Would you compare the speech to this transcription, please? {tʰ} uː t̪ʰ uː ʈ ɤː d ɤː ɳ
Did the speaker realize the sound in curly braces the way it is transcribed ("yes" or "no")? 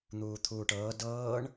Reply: no